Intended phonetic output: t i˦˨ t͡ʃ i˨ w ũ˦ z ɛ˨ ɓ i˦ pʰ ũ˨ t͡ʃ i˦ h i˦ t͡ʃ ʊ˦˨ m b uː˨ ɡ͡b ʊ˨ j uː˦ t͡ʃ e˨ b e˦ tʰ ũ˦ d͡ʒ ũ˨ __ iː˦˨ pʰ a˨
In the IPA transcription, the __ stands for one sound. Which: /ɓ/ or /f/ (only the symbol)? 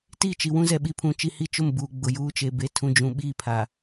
ɓ